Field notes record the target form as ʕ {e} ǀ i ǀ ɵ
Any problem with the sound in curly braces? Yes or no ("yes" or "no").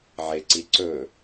no